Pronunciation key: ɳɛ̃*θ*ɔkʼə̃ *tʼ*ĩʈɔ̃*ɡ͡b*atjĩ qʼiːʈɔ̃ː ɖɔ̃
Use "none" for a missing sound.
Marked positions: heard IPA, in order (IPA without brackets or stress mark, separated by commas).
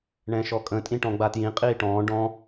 ʃ, tʼ, ɡ͡b